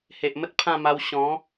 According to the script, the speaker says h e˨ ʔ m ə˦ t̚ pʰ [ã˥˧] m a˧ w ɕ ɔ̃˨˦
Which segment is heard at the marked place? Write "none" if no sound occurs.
ã˥˧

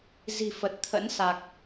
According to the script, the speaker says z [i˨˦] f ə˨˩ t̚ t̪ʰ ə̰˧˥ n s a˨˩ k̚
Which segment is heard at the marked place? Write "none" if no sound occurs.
i̤˨˩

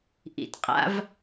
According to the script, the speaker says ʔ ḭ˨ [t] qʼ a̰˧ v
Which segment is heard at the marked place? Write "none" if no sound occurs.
t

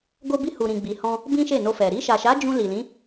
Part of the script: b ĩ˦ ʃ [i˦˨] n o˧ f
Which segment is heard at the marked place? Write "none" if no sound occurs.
e˦˨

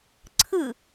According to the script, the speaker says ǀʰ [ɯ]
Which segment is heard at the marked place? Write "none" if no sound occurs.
ɯ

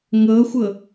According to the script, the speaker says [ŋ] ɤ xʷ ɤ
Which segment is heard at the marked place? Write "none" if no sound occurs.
ŋ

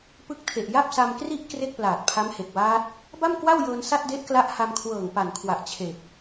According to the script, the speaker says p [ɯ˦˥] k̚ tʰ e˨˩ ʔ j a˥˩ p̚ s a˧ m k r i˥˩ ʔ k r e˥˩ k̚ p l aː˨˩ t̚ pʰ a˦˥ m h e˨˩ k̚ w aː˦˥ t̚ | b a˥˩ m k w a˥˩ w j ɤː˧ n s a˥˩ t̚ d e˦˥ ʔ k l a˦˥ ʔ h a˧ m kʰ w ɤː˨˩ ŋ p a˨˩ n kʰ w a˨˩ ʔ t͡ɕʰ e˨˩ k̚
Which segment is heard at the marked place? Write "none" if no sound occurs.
ɯ˦˥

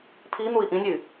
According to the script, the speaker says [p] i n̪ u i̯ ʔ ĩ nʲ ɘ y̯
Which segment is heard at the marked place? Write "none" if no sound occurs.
pʰ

